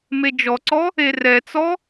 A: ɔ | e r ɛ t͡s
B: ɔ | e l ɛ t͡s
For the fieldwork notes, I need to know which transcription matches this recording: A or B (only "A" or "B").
A